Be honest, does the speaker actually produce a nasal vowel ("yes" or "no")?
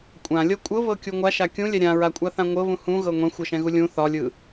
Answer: yes